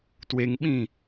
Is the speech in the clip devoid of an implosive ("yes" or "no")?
no